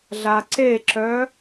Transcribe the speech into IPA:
ɮ a ǀ e ǁ œ

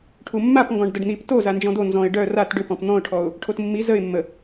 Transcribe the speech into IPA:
ʈʰ u mː a p ŋ ɡ ɔ̃ ɖ d ə ɖ n̪ i p t o z a n d͡ʒ ɔ̃ d̪ o n z ɔ̃ ɪ̯ ɖ œ r a t ɖ ʏ p ɔ̃ p n̪ ɔ̃ ʊ̯ ʈʰ ɔ ʊ̯ | ʈʰ o t mː i z ə ɪ̯ mː ə

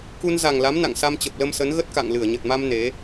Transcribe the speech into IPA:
k u˧ n z a˨˩ ŋ l a˨˦ m n a̰˧˨ ŋ s a˧ m t͡ɕ ə˨˩ p̚ l ə˧ m s ə˨˦ n ɣ ə˦˥ t̚ k a̰˧˨ ŋ l ɨ˧˩ ə̯ ɲ ə˨˩ t̚ m a˧ m n e˨˦

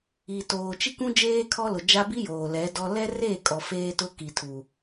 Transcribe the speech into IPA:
i˨ t oː˨ t͡ʃ i˦ k ũ˦ d͡ʒ eː˦ kʰ ɔ˦ l ʊ˨ d͡ʒ a˦ b i˦ j oː˨ l ɛ˨˦ d ɔ˦ l ɛ˦ r eː˦˨ kʼ ɔ˨ f eː˦ t ʊ˦ k i˨ tʰ u˨

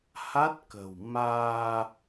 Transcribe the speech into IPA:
h a˦˥ t̚ k ə̤˨˩ w m aː˧

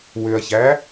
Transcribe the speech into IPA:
w ʏ ɐ̯ ç æ

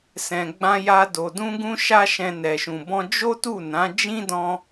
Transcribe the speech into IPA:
s ɛ̃˨ ɡ͡b ã˧ j a˧ d o˨ d ũ˧ ɡ ũ˦ ʃ a˦ ʃ ɛ̃˧ n ɛ˨ ʃ ũ˨ b ɔ̃˧ d͡ʒ o˦ t u˦˨ n ã˨˦ d͡ʒ ĩ˦ d ɔ̃˧

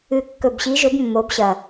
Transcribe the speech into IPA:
ɨ˨˩ kː ɵ˨˩ b ɕ i˨˦ ʒ ɵ˨˦ b mː o˨˦ b ɕ ɐ˨˩

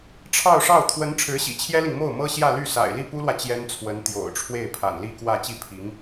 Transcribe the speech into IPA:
ʈ͡ʂʰ ɑ˥˧ ʊ̯ ʂ ɑ˥˩ ʊ̯ t̪ʰ w ə˧˥ n ʈ͡ʂʰ ɻ̩˧˥ ɕ ḭ˨˩ t͡ɕʰ j ɛ˥ l i˨ ŋ m o˥˩ ʊ̯ m ɤ˥ ɕ j ä˥˧ l y˥˩ s a̰˨˩ ɪ̯ l i˥˩ p u˥ l w ä˨ t͡ɕ j ɛ˥ n t͡sʰ w ə˧˥ n t̪ j o̰˨˩ ʊ̯ ʈ͡ʂʰ w e˥˩ ɪ̯ pʰ a̰˨˩ n l i˥˧ k w ä˥˧ t͡ɕ i˥˩ pʰ i˧˥ ŋ

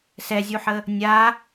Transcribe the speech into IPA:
s ɛ zʲ u ħ ə | nʲ a

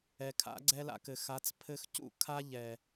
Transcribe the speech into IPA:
ɛ˨ kʰ a̰˨˦ ɡ͡ǀ ɛ˦ l a̰˧ k ɘ˨ x a˨˦ t͡s pʰ ɘ˦ x c ṵ˦˨ kʰ a˦ ʎ ɛ˨

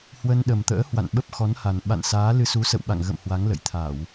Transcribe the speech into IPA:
h w ə˧ n ɗ ə˨˩ m t̪ ə̰ː˧˥ h w a̰˧˨ n ɓ ə˦˥ p̚ x ɔ˨˦ n h a˨˩ n ɓ a̰˧˨ n s aː˨˦ l ɨ˧ s u˨˦ s ə̰˧˨ w ɓ a̰˧˨ ŋ ɣ ə̰˧˨ m h w a˨˦ ŋ l ə̰˧˨ j t̪ʰ a˧˩˨ w

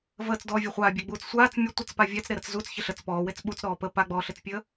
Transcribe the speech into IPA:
v əː t͡s d ɔː vʲ o χʷ aː bʲ əː ɡ͡b uː t͡s sʷ aː t͡s mʲ ə tʷ ə t͡s p a vʲ a t͡s ɾ e ɾ ə t͡s z u t͡s ç ɪ ɬ ə t͡s p ɔː w e t͡s ɓ u t͡s ɾ ɔː p ə p a ɡ͡b ɔː ɬ ɪ t͡s pʲ əː

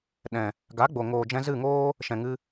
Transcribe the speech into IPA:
ɗ ɛ̃˨ | ɡ a˨˦ ɡ͡b o˨ ŋ oː˨ d͡ʒ ɛ̃˧ z ɨ˦˨ ŋ oː˦ | ʃ ɛ̃˨ ŋ ɨ˧

